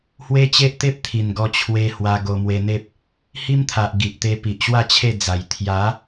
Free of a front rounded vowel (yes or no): yes